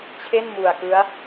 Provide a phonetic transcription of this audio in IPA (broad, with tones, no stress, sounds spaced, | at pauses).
t͡ɕʰ e˥˩ n m u˨˩ a̯ k ɯ˦˥ a̯